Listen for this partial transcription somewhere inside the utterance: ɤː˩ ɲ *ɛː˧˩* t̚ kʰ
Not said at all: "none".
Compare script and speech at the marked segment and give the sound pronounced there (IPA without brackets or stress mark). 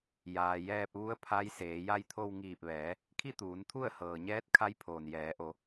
ɛː˧˥